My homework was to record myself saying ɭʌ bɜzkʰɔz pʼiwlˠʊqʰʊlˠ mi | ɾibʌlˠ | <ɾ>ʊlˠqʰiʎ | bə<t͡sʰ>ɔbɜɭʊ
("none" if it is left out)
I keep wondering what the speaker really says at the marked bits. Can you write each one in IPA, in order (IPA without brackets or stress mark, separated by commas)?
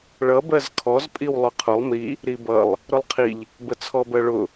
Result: ɾ, t͡sʰ